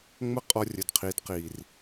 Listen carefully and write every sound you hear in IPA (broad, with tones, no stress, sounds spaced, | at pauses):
ŋ͡m ə˦ qʼ ɔ˧ rʲ ə˨ d qʰ i˨˦ d q i˨ r